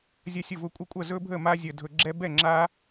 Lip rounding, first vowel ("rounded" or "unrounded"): unrounded